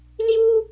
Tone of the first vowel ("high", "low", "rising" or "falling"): high